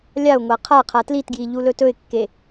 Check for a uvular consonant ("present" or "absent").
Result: present